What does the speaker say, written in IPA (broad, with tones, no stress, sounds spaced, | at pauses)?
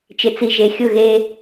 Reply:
t͡ʃ ɪ˨ t͡s i˨ ʒ e˨ xʲ ʊ˦˨ ɣ e˦